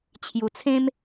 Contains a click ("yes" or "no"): no